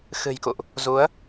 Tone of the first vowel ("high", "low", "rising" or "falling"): low